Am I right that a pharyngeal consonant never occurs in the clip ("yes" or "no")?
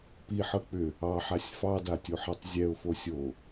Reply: no